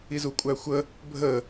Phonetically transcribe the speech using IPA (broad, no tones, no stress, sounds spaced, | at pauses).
i z u kʷʼ æ xʷ ə | bʱ ə